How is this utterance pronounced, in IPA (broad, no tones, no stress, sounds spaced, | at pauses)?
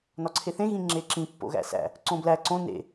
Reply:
n ɒ ǀʰ e θ ẽ ɣ ĩ ŋ͡ǁ e ǁ ĩ pː o̰ ɣ æ̰ s æ̰ | ǀ õ b l æ ǀ õ n ḛ